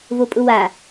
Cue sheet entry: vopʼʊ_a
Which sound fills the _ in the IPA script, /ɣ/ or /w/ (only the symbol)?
w